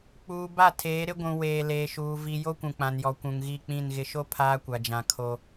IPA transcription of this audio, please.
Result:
k͡puː˨ ba˦˨tʰeː˨˦ɾɪ˦ɡʷũ˨ weː˨leː˨ʃuː˨ vi˨ jo˦kʷũ˨k͡pã˨njɔ˨ kʷũ˨ŋɣi˦˨k͡pĩ˦˨n ɣɪ˨ʃo˦ pʰaː˦kʷa˨d͡ʒã˨ kʰo˦

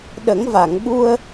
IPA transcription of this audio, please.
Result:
ɗə˨˩˦ŋva˨˩˨ŋɓu˧ə̯

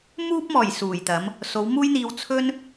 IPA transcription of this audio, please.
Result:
muː˧p̚mɔː˨˩j suː˨˩jt̪ɐ˨˥m | so˨˧wmuː˥jn̪iː˧w t͡sʰɵ˥n

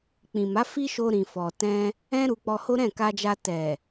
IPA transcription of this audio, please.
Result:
k͡pĩ˨ma˨˦ fi˦ʃo˧ ɾĩ˨ fɔ˨tɛ̃˧ | ɛ̃˦ ɾu˧k͡pɔ˧ho˦ ɾɛ̃˦˨ka˧d͡ʒa˧ tɛ˨

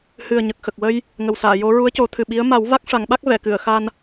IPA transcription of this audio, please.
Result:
hɨ˨˩ə̯ɲə˨˩k̚ xə˨˩k̚wə˧j | ŋə˨˩wsaː˨˩˨jo˧˥ ɹu˧˥ə̯co˨˩˦t̪ʰɨ˨˩ ɓi˧˥ə̯ ma˨˩˦w va˦˥k̚ʂa˨˩˦ŋɓa˦˥k̚ vɛ˨˩˨kɨ˨˩˨ə̯xa˧n

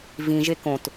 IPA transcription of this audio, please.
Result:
vĩʒe kõt

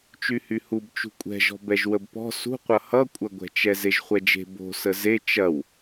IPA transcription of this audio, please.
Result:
t͡ʃyhyhub t͡ʃṳkʷʼɛ̤ʒɔ̤ bɛʒwəbpɔ̤ sṳqʷʌ hʌkʷʼɐɡʷɛ̤t͡ʃɛ zeʒχʷɛd͡ʒe̤ bo̤ səze t͡ʃɐw

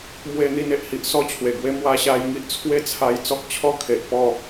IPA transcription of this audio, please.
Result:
mwe˧n̪i˧ne˨ʔhi˨ʔ sɔ˥˧t͡ɕʰwe˨˩ɡwe˦ mwa˧ɕa˧jŋi˦ʔ t͡sʰwe˦t͡sʰa˧j t͡sɔ˦k̚t͡ɕʰɔ˦kʰe˨ʔpɔ˥˧

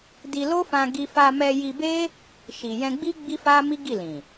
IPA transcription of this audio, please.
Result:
di˧ lo˦fã˧ɡi˧ fa˧mɛ˧ji˧be˦ | ʃi˨jɛ̃˧ɡ͡bi˦ ɡ͡bi˦fa˦mi˦ ɡi˦˨lĩ˨

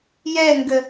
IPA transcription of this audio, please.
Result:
jɛŋɡə

